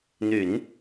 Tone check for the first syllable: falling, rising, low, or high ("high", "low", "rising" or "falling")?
low